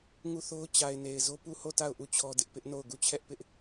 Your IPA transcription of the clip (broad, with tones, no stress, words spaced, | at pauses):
ŋu˦˨θo˦ʊ̯ t͡ɕa˨ɪ̯ ne˨ɪ̯zo˦ pu˦˨ho˦˨ ta˦˨ʊ̯ ʔu˦˨t͡ɕʰɔ˦dɪ˦ʔ pɪ˦ʔno˦˨ʊ̯ ɡu˦˨t͡ɕʰɛ˦ʔpɪ˦ʔ